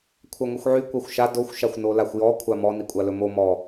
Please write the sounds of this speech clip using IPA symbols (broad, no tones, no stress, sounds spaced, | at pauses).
kʷʰ a ŋʷ ɛ xʷ ʕ y kʷ a xʷ ʃ a d o xʷ ʃ a xʷ n o l a xʷ j ɔ kʷʰ a m ɔ n i kʷʼ a l ɵ m o m ɔ